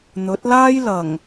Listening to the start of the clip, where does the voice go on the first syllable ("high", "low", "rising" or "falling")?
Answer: rising